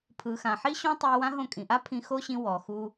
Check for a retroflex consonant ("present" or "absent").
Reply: absent